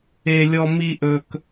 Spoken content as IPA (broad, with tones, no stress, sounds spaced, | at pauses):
e˧ lʲ ɔ˧ m i˧ ʔ ɵ˧ k